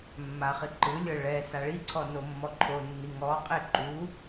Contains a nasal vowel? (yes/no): no